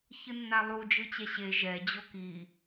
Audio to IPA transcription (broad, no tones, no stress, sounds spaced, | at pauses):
ç ɯ nː a lˠ u d͡ʒ ɯ t͡ɕ ɛ ɕ e ʒ ɛ d͡ʑ o k i